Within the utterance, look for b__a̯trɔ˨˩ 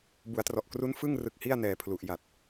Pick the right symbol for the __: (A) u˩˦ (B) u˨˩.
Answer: A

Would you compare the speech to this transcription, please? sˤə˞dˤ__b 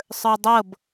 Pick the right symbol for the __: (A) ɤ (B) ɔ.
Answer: A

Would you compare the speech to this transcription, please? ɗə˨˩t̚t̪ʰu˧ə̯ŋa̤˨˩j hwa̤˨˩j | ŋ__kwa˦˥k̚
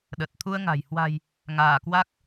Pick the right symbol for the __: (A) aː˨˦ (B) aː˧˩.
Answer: B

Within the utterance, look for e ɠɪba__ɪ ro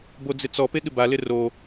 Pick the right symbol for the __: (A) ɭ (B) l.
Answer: B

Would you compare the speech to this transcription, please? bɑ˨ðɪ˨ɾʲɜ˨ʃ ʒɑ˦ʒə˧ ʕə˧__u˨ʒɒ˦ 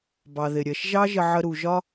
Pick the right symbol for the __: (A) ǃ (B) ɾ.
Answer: B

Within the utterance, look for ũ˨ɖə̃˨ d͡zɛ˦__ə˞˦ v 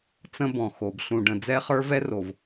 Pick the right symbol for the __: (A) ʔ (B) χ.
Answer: B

